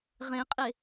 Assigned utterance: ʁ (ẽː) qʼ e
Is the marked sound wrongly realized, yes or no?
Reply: yes